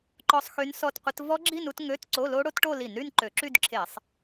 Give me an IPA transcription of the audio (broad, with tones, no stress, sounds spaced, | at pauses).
ǃ ɔ˦˥ sˤ x y˦˥ n s ɔ˥˧ t qʷ ɪ˦˥ t v ɔ˦˥ ɡ͡ǁ i˥˧ n u˥˧ t ŋ ø˧˥˧ t ǀ o˧˥˧ l o˦˥ ɽ o˦˥ t ʈ o˥˧ l i˧˩˧ n ɾ y˥˧ n ǃ ø˧˩˧ ǁ y˥˧ d ǁʰ e˧˩˧ sˤ